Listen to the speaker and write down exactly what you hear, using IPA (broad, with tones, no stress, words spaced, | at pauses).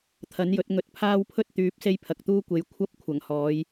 t̪ʰɐ˨˥njɵ˨˥t̚ ŋɵ˧t̚ pʰaː˥wpʰɵ˥t̚t̪yː˨˥p̚ se˥jpʰɐ˨k̚t̪uː˥kʷe˨˥j kʷʰɐ˧p̚ kʷʰɐ˨˩ŋhɔː˨˧j